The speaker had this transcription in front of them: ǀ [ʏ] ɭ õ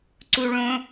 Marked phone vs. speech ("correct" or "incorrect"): incorrect